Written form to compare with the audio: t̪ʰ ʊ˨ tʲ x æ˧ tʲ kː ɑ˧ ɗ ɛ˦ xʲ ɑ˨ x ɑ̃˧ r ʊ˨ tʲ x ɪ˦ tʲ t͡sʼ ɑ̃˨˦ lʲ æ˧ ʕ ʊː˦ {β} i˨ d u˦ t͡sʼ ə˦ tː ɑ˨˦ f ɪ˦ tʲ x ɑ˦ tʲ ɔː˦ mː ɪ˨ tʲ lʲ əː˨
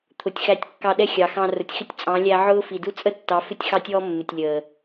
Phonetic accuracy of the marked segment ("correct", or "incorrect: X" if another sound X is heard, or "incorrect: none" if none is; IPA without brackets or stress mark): incorrect: f